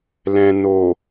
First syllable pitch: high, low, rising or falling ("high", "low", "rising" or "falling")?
low